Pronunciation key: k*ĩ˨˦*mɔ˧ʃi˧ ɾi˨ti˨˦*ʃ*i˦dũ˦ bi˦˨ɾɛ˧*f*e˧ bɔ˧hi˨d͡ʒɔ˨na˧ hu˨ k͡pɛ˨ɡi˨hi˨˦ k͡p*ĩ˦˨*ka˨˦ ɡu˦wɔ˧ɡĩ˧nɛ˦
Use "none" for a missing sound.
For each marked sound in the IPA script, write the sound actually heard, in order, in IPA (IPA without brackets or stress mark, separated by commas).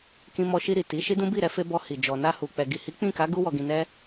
ĩ˧, ʃ, f, ĩ˦˨